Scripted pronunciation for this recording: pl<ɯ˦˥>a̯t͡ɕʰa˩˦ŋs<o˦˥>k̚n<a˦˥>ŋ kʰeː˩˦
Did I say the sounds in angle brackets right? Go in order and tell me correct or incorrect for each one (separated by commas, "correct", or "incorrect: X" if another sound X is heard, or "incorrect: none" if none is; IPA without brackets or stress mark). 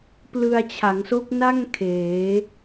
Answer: incorrect: ɯ˧, correct, incorrect: a˥˩